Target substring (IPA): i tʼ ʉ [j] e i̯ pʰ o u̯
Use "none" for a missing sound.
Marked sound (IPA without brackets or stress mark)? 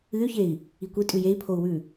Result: j